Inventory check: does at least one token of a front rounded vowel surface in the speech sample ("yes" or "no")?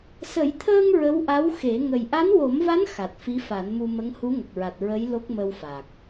no